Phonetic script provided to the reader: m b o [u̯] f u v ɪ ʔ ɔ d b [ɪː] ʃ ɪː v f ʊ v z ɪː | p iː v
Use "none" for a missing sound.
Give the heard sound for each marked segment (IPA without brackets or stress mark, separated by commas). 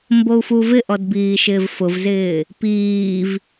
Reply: u̯, iː